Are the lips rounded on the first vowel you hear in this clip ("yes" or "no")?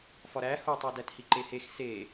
yes